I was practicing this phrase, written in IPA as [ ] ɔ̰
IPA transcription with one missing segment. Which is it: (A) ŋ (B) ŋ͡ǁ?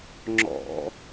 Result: B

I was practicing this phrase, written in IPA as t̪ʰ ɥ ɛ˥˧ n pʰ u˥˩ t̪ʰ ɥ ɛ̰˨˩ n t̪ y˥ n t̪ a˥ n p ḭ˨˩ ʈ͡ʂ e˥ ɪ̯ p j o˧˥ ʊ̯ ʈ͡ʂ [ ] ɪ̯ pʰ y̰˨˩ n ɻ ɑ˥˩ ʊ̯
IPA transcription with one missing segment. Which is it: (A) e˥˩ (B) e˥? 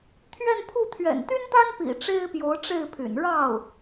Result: A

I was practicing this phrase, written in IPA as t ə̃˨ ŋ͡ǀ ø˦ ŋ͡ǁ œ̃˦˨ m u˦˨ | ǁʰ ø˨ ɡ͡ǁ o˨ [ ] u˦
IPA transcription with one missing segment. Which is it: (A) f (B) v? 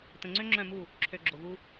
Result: B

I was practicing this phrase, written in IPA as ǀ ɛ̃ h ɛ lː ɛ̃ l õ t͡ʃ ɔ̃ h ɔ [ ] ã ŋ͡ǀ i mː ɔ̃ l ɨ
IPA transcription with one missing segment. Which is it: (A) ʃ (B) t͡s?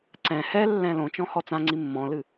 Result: B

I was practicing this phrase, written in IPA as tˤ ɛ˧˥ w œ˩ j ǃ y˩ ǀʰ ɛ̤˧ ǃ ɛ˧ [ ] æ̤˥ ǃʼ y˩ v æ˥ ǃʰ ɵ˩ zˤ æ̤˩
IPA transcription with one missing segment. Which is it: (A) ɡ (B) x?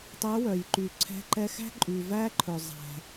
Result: B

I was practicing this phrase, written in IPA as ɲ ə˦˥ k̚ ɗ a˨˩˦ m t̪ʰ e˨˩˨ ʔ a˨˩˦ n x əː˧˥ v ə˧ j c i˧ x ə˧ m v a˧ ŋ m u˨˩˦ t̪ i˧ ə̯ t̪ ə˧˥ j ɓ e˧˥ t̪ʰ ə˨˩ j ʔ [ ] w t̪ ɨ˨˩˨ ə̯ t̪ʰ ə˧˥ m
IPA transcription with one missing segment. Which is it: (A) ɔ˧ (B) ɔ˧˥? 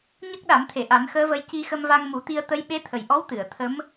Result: B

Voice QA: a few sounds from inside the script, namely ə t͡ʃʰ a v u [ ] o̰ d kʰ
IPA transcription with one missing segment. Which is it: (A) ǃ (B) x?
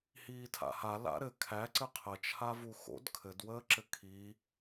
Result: B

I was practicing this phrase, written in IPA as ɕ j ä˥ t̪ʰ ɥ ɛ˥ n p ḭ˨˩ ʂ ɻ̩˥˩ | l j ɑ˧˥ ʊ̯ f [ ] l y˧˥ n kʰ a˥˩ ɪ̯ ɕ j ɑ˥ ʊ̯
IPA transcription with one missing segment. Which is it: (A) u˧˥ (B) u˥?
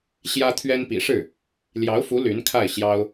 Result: A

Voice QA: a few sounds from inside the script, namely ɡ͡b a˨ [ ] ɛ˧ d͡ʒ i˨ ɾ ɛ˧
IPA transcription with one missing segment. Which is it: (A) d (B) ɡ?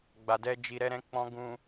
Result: A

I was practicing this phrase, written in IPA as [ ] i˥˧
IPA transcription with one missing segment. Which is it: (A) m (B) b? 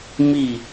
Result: A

